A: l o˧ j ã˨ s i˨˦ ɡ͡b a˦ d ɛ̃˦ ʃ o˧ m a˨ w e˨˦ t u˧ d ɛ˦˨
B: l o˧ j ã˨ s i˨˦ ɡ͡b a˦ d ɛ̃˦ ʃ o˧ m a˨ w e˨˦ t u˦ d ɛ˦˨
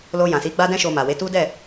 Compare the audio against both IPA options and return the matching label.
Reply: B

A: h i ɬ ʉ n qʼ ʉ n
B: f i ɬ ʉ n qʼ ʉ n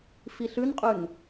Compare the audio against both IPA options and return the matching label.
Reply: B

